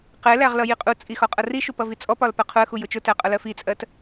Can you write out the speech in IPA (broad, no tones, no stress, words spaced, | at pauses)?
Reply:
qɛlæʁ lʌjiqʼut͡sʼi xɒqʼʌriʃu pʌvit͡sʼɔpɒl pɜqʰʊə̯xu jʊt͡ʃʊtæ qʼʌlɜfit͡sʼɜt